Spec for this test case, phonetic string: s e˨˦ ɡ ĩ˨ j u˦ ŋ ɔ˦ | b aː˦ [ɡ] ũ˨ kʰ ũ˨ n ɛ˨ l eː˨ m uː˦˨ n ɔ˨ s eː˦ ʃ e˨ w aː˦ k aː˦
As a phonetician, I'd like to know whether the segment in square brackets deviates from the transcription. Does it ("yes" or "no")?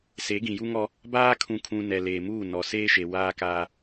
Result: yes